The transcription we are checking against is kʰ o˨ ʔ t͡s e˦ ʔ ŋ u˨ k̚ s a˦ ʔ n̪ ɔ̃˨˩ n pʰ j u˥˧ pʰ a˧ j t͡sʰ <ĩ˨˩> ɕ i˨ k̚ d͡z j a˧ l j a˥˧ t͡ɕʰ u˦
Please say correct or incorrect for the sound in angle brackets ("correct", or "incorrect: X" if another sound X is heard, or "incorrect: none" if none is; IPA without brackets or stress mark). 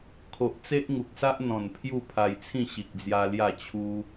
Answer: incorrect: ĩ˥˧